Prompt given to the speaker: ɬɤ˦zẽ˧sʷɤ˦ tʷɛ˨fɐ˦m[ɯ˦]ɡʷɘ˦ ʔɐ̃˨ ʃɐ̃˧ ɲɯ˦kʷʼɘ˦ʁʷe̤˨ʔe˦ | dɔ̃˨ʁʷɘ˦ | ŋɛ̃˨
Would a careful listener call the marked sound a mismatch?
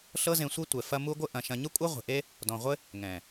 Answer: yes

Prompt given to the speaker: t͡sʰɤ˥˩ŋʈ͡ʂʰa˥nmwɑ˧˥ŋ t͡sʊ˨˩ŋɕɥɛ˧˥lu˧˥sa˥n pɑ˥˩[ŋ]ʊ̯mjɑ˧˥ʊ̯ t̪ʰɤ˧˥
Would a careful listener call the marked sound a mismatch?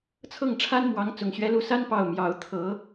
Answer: yes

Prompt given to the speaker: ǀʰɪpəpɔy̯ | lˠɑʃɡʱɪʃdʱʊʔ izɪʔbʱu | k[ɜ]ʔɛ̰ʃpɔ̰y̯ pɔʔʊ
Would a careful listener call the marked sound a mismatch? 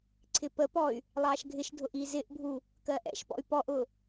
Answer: no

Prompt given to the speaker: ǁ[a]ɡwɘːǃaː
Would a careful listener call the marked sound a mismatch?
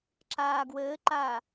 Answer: yes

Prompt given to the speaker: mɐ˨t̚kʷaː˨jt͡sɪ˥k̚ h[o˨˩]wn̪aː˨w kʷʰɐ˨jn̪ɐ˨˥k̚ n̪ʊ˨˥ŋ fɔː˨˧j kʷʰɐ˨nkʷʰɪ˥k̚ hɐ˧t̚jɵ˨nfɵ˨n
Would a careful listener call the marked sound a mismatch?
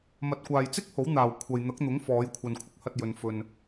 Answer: yes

